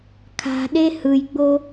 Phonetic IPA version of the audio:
kʰ a̤ ɗ e h ɯ j ɡ͡b o

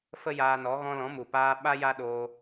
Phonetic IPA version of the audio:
f ə˦ j aː˧ n ɔ˨˦ ɣ ɔ̃˧ l ɔ̃˨˦ m u˨ p aː˧ ɓ a˦ j a˦ ɗ oː˧

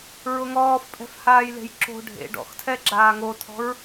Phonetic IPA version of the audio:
ɹ ʊ ŋ ɔː f pʼ ɛ̤ f h aː j l e̤ j ǁ o̤ ɖʱ ḛ ɖ ɔ̰ x tʰ ɛ ɡ͡ǁ aː ŋ o tʰ ɔ̤ ɹ

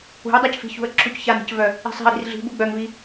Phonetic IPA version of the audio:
ṳ ə̯ dˤ a c f i̤ ç ṳ ə̯ ǁʰ u c ç a n i̤ c v œ | i̤ sˤ i̤ ə̯ ɾ i̤ r ɮ i̤ b u ɡ͡b œ ŋ v i

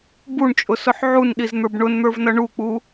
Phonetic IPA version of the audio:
b u ɳ t͡ʃʼ ʊ s ʊ ħ ʕ u n ɗ i z n̪ ə˞ b ɳ ʊ n n̪ ə˞ v n ʌ ɳ u k͡p u

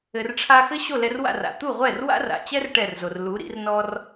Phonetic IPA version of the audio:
ɘ˩ r ʈ͡ʂʰ a˧ x ɘ˥ ɕ o˥˩ l ɛ˧ r w a̰˥˩ r a̰˩ t̪ u˥˩ ʁʷ ɛ˥˩ r w a̰˥ r a̰˩ t͡ɕ ɛ˥ r ʈ ɛ˥˩ r z o˩ r l u˩˥ ɾ ḭ˩˥ r n ɔ˥ r

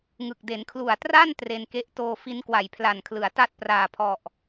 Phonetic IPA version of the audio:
ŋ ɯ˨˩ k̚ d e˩˦ n kʰ l u˨˩ a̯ t r a˥˩ n t r e˧ n k e˦˥ ʔ t oː˧ f i˦˥ n k w a˨˩ j pʰ l a˨˩ n kʰ l ɯ˩˦ a̯ t a˥˩ t̚ p r aː˨˩ pʰ ɔ˨˩ ʔ

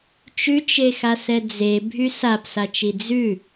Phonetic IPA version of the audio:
t͡ʃ ʉ t͡ʃ e x a s ɛ d͡z e bʱ y s a p s a t͡ʃ i d͡z ʉ

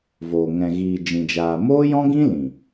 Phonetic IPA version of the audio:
v oː˨ ŋ ɛ̃˨ ɣ iː˨ d͡ʒ ĩ˨ d͡ʒ aː˨ m oː˦ j ɔ̃˦ ɡ ĩ˦ l ĩ˨

